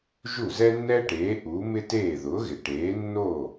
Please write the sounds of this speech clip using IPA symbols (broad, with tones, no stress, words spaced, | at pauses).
ʒu˥˩zɛ˥nːɛ˥ʈeː˩˥ ʔuː˩˥mɪ˥teː˥˩ ðʊː˩˥ɣɪ˩ ʈeː˩˥nːoː˥˩